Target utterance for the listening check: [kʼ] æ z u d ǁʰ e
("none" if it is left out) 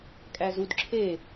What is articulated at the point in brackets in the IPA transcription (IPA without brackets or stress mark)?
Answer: kʼ